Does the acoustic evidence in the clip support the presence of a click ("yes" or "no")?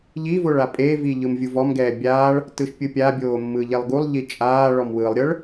no